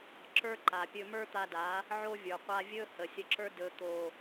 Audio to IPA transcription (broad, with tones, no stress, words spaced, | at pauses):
ǁə˞˦ǃa˨pʲɵ˧ mə˞˦t̪a˧ da˨˦ | ʕo˦vʲə˞˨ qʷa˧vʲɵ˦ hə˨sʲə˧ǁə˞˦ dɵ˨t̪o˨